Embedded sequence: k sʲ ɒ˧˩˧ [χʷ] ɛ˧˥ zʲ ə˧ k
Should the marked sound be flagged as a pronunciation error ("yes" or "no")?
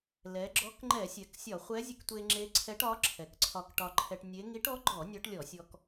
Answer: no